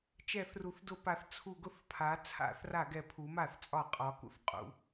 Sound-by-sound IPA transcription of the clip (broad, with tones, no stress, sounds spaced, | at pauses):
t͡ʃ ɛ˧˩˧ θ r u˩˧ θ d ʊ˧˩˧ p a˩˧ θ t͡sʰ u˧˩˧ ɡ ʊ˧˩˧ θ pʰ a˩˧ t͡sʰ a̰˧˩˧ θ r a˧˩˧ ɡ ɛ˩˧ pʰ u˩˧ m a˧˩˧ θ t͡sʼ ɒ˧˩˧ qʼ ɒ˩˥ k ṵ˩˥ θ qʼ ṵ˩˧